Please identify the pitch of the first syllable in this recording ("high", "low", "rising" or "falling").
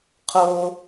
high